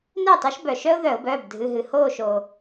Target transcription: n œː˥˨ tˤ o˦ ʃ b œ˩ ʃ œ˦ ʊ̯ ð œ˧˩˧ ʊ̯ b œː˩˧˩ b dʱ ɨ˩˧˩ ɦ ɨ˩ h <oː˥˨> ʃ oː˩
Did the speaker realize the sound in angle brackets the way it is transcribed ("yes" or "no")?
yes